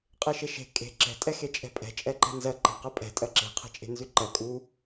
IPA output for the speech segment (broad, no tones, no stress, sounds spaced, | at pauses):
qʼ e ʃ e ʃ e̤ kʼ e̤ ǁ ɛ̤ tʼ ɛ x e t͡ʃʼ ɛ̤ pʼ ɛ̤ t͡ʃʼ ɛ ǃ ɛ̤ n z ɜ ǃ e̤ q ɜ pʼ ɛ̤ tʼ ɜ ǁ e̤ qʰ e̤ t͡ʃʼ e̤ n z ʉ ǃ ɜ kʼ u